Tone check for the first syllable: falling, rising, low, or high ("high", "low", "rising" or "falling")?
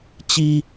high